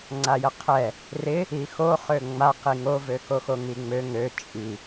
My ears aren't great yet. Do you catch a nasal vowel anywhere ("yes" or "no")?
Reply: no